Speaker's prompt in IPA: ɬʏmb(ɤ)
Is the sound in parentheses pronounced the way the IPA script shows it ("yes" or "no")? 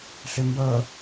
yes